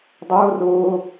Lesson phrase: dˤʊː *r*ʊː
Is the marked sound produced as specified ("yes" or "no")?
yes